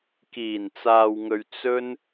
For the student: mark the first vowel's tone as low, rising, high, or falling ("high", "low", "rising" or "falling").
low